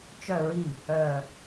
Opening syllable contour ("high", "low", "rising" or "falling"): falling